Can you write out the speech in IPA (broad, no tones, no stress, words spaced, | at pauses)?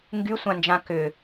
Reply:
ŋɡysʷãnd͡ʒã kʏ